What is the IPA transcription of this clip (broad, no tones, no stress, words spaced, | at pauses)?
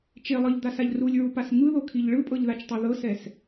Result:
t͡ʃelˠɤʎd̪asaʎ rulʲɹupas ŋɯðokʰiʎ ɭɯpʼɤʎðat͡ʃtˤo ðɤsɛs